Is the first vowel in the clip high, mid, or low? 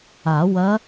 low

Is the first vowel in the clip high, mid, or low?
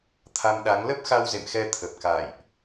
low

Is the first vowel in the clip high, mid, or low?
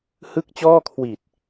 high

